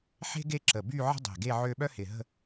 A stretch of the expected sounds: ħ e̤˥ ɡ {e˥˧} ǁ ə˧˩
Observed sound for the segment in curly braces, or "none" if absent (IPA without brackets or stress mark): e˥˧